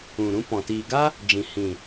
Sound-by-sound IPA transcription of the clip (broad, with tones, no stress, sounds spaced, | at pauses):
ũ˨ ɾ ũ˧ p ɔ̃˨ t iː˨ ɡ a˦ | d͡ʒ ĩ˨ h ĩ˨